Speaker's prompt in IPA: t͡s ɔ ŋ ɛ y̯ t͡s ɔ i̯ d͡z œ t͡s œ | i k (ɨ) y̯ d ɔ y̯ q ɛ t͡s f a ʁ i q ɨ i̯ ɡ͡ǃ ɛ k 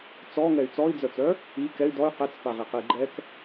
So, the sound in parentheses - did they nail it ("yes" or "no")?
no